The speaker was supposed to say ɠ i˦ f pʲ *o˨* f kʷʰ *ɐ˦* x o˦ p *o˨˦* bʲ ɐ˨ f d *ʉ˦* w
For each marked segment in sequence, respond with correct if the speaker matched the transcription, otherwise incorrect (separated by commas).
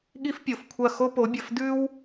correct, incorrect, correct, correct